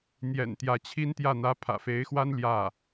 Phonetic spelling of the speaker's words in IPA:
n̪ j ɛ̰˨˩ n t̪ j ä˧˥ t͡ɕʰ i˥ n t̪ j ä˥˩ n̪ ä˧˥ pʰ ä̰˨˩ f e˧˥ ɪ̯ x w a˥ n l j ä˥˩

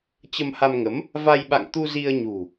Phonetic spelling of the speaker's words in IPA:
t͡ɕ ə˧ m h a˧ m ŋ ə˨˦ m | v a˧ j ɓ a̰˧˨ ŋ t̪ u˧ z i˧ ə̯ ɲ ṳ˨˩

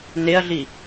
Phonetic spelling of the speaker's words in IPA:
n e ɐ̯ ɮ i

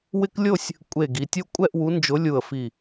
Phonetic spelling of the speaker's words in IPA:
w ɪ˦ k lʲ o˥˨ sʲ | kʷʼ e˧˩ ɡ i˩˧ tʲ o˦ kʷʼ ɛ˥˨ ʔ w u˨˥ n d͡ʒ ʊ˨˥ lʲ u˧˩ ə̯ f i˧˩

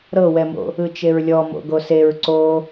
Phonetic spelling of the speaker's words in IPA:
ɾ ɤ w ɛ m o̰ | ɯ t͡ʃ e ɹ lʲ ɔ m o̰ ɡ o s e ɹ ǀ o

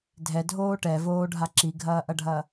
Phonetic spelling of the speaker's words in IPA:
dʱ ɛ dʱ oː ʈ ɛ v oː ɖʱ a ǁ i ɡʱ ɐː ʔ ɐ ɖʱ ɐ

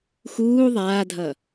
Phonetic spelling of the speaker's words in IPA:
x uː ðˤ aː dʱ ʌ

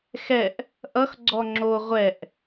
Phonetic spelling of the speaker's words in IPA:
x ɛ ʔ | ʔ ʌ x ɡ͡ǀ ɔ ŋ͡ǁ o ʁʷ ɛ ʔ

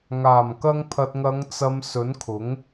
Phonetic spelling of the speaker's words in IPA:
ŋ aː˨˩ m k ɐ˧ ŋ pʰ ɐ˨ t̚ ŋ ɐ˨˧ ŋ t͡s ɐ˨ m s ɵ˨˥ n kʰ ʊ˨˥ ŋ

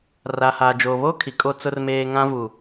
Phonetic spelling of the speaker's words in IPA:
r a˨ h aː˨ d͡ʒ oː˨ β o˦ kʰ i˨ kʼ o˦ t͡s ʊ˨ r m eː˨ ŋ ã˦ v uː˨

